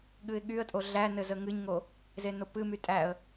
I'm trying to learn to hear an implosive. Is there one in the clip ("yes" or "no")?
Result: yes